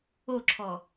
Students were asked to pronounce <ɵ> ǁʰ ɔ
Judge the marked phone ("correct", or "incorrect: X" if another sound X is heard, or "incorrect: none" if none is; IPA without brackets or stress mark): incorrect: o